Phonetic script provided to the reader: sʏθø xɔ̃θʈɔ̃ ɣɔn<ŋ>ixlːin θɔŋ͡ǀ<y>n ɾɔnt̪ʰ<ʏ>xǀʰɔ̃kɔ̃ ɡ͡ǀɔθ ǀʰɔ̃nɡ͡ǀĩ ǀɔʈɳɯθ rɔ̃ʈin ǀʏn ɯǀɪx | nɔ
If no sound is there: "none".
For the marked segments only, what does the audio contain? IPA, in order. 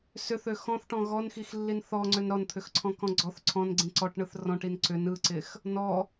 x, ʏ, ʏ

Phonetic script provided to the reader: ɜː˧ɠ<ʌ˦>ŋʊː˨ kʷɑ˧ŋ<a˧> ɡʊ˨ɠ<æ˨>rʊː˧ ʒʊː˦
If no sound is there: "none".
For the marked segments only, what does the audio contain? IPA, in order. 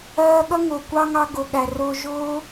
ʌ˦, ɑ˧, æ˨

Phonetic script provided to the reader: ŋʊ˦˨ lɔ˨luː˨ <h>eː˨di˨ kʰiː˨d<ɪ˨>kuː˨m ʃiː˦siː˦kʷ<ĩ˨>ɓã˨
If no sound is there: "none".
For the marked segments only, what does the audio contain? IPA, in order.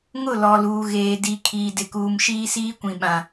ɣ, ɪ˨, ĩ˨

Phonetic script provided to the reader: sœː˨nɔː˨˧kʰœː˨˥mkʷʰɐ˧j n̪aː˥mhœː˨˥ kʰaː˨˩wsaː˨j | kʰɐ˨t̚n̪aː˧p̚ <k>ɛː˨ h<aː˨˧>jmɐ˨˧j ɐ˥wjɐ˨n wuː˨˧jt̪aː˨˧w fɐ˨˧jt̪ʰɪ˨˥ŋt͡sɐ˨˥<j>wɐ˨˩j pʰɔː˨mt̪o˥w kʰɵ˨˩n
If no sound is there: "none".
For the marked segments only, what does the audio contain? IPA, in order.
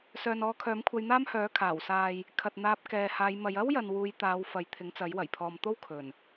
k, aː˨˧, j

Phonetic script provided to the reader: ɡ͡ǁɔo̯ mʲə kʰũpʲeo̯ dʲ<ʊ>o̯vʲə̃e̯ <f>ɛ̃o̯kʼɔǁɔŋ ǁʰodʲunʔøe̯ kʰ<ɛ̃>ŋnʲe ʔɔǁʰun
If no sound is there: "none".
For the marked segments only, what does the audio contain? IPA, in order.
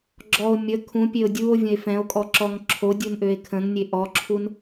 u, f, ə̃

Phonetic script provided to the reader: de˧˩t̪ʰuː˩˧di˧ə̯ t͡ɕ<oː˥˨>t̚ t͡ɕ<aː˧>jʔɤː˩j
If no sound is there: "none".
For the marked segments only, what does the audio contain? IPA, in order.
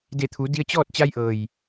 ɔː˥˨, a˧

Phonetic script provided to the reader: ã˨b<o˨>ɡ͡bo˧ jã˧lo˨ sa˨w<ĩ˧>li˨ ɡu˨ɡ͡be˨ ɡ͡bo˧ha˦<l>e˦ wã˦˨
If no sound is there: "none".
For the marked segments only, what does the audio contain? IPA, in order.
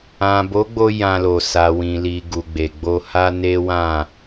o˨˦, ĩ˨, n

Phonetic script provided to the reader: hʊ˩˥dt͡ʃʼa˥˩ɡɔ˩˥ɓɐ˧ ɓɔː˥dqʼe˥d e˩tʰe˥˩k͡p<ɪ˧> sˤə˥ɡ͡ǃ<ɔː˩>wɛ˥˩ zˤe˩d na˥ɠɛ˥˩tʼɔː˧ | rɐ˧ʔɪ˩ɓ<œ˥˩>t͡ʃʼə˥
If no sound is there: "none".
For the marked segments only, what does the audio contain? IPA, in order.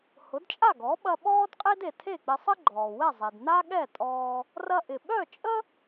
ɪ˧, ɔː˩, œ˥˩

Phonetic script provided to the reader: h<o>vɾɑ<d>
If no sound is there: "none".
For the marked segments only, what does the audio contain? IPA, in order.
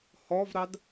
ɔ, d

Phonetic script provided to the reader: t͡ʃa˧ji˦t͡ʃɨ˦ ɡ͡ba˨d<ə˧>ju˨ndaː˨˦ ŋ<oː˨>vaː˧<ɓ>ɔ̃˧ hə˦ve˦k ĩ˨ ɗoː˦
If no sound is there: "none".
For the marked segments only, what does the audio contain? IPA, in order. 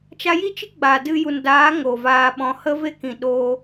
ɨ˧, o˨, ɓ

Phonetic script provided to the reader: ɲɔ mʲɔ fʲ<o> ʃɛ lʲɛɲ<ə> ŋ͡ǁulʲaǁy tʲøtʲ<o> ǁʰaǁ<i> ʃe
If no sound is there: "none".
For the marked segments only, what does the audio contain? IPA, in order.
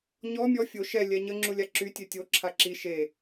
o, ə, o, i

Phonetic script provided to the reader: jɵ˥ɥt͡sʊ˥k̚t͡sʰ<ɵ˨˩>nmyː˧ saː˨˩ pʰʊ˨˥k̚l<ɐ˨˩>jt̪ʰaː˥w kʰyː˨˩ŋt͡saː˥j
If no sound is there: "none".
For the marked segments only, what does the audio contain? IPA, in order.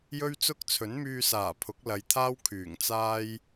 ɵ˨˥, ɐ˨˧

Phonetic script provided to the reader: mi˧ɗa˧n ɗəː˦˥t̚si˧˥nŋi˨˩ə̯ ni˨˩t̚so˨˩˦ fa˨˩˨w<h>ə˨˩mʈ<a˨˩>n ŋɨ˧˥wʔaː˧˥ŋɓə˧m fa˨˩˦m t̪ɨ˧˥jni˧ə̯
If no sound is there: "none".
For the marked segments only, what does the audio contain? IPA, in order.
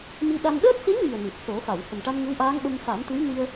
h, a˧

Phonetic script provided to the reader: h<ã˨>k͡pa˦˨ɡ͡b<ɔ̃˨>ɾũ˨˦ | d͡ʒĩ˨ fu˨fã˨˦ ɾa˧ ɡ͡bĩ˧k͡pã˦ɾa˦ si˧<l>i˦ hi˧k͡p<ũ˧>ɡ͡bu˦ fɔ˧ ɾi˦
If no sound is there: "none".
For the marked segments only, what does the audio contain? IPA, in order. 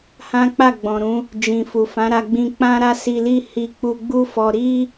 ã˦, ɔ̃˨, l, u˧

